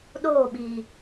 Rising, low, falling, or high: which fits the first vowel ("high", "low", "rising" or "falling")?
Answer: falling